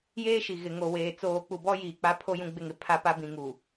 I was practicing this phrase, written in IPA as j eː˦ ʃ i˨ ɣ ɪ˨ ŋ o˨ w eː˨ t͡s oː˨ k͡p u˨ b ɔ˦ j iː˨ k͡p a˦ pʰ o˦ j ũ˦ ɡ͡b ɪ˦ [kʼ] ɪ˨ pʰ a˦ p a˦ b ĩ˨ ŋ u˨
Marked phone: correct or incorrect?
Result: incorrect: ŋ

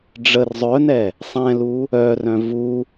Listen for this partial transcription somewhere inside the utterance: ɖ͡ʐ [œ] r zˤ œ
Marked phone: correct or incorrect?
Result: incorrect: ə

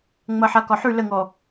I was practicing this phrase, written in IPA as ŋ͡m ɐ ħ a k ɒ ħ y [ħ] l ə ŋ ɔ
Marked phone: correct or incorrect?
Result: incorrect: none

